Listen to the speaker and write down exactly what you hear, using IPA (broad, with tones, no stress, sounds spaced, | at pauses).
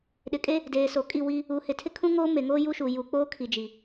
ɗ ɪ˨ kʼ e˦ | d eː˨ s o˨ kʼ i˦˨ w i˦ | u˨ h ɪ˨ tʰ ɪ˦ kʰ ũ˦ ŋ oː˦ m e˨ ŋ oː˦ j u˦ ʃ u˨ j u˨˦ k͡p oː˦ kʰ i˨ d͡ʒ i˨